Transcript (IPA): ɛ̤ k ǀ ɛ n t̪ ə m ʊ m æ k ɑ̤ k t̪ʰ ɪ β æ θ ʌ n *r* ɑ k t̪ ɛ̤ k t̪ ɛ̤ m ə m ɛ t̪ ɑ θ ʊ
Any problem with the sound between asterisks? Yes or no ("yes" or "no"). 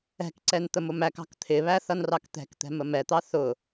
no